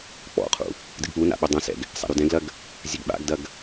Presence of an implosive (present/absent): present